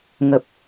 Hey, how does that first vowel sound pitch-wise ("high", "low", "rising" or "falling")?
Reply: low